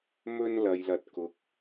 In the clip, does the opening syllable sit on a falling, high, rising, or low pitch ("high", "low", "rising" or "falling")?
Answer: high